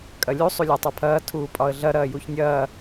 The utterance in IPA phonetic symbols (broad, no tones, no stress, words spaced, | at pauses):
kʼɐlʲu sˤulʲatˤapʰɐː tʰuːpʼɒə̯ɮɐ ɾɐːjuçnʲɐː